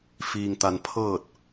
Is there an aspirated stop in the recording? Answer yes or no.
yes